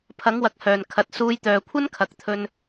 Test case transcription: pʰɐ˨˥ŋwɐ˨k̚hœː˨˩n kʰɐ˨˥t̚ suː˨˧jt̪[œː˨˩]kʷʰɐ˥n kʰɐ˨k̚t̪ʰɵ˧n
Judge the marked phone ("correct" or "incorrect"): incorrect